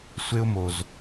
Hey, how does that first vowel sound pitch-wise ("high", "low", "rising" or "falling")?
high